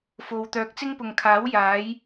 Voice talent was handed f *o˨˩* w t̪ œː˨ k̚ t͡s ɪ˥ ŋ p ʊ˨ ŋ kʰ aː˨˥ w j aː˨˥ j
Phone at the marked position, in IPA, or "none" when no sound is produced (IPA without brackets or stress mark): o˨